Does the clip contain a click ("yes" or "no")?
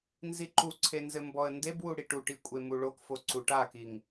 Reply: yes